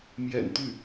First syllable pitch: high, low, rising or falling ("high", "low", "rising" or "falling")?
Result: low